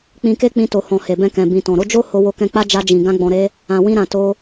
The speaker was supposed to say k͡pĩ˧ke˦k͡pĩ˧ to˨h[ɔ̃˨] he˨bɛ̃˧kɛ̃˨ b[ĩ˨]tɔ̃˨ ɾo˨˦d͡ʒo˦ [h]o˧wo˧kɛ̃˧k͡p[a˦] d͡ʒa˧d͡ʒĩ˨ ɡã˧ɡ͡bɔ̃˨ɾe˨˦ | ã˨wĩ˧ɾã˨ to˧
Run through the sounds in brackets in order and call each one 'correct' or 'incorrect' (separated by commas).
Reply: correct, correct, correct, correct